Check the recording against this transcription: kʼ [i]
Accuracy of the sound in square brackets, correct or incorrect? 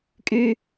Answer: incorrect